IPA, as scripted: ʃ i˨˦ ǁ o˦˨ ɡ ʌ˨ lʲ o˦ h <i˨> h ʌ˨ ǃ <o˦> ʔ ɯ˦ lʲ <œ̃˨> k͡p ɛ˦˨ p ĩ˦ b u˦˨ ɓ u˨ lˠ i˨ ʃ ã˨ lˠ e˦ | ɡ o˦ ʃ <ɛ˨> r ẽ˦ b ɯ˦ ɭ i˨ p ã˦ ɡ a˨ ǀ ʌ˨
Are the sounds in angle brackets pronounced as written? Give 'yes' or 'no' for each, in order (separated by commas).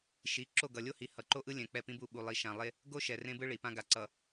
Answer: yes, yes, no, yes